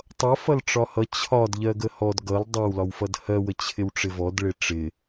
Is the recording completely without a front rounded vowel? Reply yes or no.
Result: yes